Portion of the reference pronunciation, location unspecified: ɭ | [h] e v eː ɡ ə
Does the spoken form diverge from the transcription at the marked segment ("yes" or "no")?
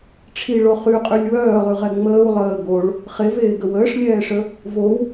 yes